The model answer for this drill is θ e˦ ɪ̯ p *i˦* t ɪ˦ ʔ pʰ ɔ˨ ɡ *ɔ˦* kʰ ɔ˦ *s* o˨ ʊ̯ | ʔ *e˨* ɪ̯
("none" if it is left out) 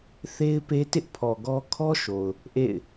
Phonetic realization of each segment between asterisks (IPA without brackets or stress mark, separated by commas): e˦, ɔ˦, ʃ, ḛ˦˨